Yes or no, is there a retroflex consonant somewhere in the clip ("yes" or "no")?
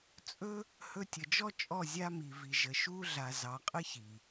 no